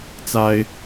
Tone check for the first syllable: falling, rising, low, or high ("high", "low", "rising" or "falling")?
high